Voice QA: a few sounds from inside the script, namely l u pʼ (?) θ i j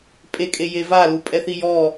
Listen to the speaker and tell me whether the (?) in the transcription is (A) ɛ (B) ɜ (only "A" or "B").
A